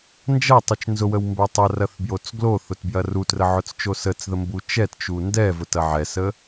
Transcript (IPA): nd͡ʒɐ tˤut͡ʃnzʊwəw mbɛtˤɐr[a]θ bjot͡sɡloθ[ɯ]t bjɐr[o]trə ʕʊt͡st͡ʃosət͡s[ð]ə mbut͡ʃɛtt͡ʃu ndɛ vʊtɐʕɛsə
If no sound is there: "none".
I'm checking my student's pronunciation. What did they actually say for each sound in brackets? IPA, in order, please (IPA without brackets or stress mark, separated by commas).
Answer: ɐ, ʊ, u, ð